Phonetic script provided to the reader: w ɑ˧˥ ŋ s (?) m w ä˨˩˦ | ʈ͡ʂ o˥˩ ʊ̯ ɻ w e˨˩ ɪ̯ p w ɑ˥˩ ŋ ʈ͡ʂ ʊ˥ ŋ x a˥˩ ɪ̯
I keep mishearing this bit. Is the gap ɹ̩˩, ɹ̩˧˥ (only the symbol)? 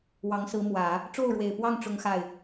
ɹ̩˧˥